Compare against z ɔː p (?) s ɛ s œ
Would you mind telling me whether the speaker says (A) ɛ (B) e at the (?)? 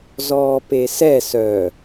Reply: B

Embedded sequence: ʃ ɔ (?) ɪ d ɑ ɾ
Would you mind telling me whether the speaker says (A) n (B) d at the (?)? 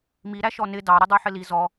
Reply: A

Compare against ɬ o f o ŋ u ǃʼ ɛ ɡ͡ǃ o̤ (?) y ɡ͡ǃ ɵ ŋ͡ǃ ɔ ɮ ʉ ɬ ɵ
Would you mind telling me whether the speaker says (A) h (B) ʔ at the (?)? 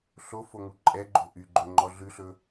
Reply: B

